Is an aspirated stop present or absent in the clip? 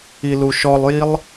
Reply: absent